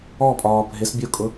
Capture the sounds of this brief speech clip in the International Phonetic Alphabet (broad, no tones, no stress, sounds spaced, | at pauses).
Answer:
ɔ pʼ ɒː bʱ ɪ s bʲ ʊː kʼ ʊ